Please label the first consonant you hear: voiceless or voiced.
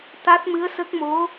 voiceless